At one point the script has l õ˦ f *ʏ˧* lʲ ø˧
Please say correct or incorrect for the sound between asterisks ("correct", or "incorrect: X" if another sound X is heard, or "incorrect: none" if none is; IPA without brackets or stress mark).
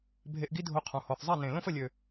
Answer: incorrect: ə˧